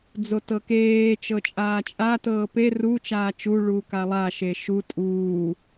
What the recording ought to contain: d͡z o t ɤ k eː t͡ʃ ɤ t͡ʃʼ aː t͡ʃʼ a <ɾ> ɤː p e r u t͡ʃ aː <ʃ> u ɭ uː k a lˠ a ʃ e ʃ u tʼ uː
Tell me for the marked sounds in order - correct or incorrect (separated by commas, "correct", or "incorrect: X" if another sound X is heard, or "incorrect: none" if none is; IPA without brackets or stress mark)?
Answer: incorrect: t, incorrect: t͡ʃ